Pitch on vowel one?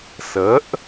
rising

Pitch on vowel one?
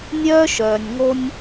high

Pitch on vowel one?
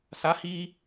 rising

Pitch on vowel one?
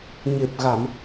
low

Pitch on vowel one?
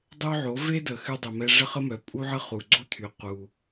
high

